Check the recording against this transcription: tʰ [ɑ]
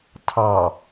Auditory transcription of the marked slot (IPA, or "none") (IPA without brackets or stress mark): ɑ